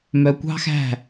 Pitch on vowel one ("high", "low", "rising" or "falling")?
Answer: low